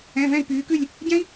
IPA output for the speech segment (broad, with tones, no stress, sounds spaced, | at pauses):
ɛ̃˧˥˧ v ɛ̃˥˧ i̯ p yː˧˥ k ʉ˥˧ lʲ | ɟ ɛ̃˥ i̯